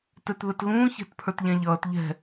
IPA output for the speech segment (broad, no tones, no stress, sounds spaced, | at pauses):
t ɛ t ð ə t ɣ ũː ç ɛ̤ t pʰ ə˞ t ʎ ɛ̃ ʎ ʌː t ʎ ɛ̤